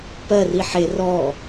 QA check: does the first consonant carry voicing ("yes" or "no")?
no